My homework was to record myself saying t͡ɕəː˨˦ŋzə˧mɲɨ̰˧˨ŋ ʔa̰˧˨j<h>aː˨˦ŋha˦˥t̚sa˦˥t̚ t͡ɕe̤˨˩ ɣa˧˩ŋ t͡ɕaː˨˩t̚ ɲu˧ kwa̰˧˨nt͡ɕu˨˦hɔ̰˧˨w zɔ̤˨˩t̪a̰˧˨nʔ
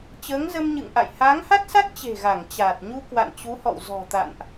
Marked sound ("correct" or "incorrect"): correct